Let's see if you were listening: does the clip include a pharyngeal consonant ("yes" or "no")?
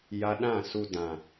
no